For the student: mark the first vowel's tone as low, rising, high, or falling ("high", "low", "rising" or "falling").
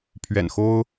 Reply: low